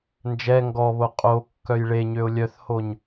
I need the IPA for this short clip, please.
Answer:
nd͡ʒɛ ŋɡɔβo qʼo kːœjɭeɲøʊ̯ lʲœθhoɲ

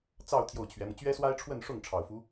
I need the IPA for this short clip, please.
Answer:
t͡sɑ˥˧ʊ̯ t̪ʰjo˥˩ʊ̯t͡ɕʰɥɛ˧˥mɤ˧ t͡ɕɥɛ˥swa˥ɪ̯ʈ͡ʂʰwə˥˧nʂʊ˥˩ŋ ʈ͡ʂʰɑ˨˩ʊ̯fu˧˥

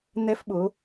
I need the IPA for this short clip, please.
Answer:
n̪ɛ˧fɓʊ˩˧

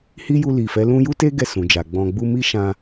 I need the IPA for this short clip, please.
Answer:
hi˦ju˧li˨ fɛ˨˦lũ˦ ju˦te˦ ɡɛ˦˨sũ˨d͡ʒa˨ɡ͡bɔ̃˧ ɡ͡bu˧mi˦ ʃã˧

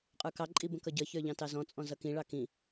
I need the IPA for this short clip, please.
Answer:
qʼə˞kɑǃʼi bə̃kʌɟʌçə˞ ʎɑ̃tɑzɔ̃t͡sʼɔ̃ zʌkĩɭɑ kĩ

